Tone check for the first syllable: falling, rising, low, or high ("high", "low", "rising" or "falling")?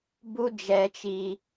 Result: high